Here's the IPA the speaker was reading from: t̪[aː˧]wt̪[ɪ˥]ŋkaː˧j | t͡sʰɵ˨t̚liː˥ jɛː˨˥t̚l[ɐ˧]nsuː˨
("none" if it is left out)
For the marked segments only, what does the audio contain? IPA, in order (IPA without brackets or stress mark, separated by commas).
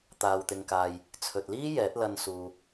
aː˧, ɪ˧, ɐ˧